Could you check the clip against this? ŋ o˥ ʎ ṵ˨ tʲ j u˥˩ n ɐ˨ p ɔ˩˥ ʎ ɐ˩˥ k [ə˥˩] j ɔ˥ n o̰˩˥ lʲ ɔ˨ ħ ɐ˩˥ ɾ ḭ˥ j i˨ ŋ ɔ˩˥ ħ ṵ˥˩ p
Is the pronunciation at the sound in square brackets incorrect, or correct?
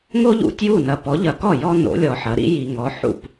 incorrect